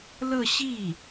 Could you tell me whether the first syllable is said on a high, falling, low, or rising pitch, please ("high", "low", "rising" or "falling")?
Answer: falling